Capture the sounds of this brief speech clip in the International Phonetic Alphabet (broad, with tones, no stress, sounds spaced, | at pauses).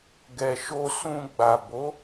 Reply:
ɡ ɛ˨ ʃ o˧ s ũ˧ ɡ͡b a˨ b o˨˦